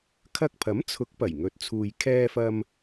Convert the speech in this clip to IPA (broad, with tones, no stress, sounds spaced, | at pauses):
kʰ ɐ˧ k̚ pʰ ɐ˨˥ m t͡sʰ ʊ˨˥ k̚ p ɐ˨˩ j ŋ ɵ˨˥ t̚ t͡sʰ uː˨ j kʰ ɛː˧ f ɐ˧ m